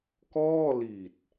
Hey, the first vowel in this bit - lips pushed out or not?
yes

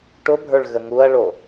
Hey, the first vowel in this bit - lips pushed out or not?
yes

